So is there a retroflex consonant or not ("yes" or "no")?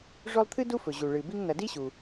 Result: yes